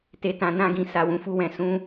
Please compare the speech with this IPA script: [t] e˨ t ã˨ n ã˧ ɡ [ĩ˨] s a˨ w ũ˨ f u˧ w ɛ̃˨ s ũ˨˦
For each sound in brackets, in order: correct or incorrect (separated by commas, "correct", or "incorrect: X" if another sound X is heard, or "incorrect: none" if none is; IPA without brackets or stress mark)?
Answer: correct, correct